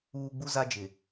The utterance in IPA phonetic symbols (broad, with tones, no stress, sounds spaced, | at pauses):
uː˦ ɡ͡b u˦ z a˦ d͡ʒ ɪ˨